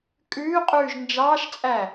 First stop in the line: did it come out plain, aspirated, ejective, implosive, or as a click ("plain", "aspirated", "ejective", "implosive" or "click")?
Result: ejective